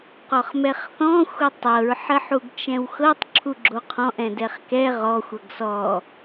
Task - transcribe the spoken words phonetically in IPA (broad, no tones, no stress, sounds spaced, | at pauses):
q ɔ χ m ɛ χ θ ɔ̃ xʷ ə tˤ ɤ ɹ ħ ə ħ u ɡ t͡ʃ ɛ̃ w x ɤ tˤ ǁʰ u ɡ͡ǁ o qʰ ɔ̃ ʔ ɛ̃ d ɛ χ k ɛ ʁ ɔ xʷ ɤ ɡ s ɔ